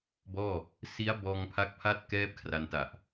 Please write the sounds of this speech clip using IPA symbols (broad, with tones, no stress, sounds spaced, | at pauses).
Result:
b ɔː˥˩ | s i˦˥ a̯ b ɔː˧ ŋ pʰ a˦˥ k̚ pʰ a˥˩ t̚ k ɛː˥˩ p̚ kʰ r a˧ n t a˨˩ ʔ